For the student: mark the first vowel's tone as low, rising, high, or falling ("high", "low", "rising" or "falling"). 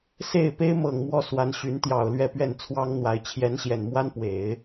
falling